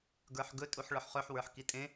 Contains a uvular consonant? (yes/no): yes